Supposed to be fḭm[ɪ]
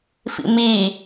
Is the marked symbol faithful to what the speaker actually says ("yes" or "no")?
no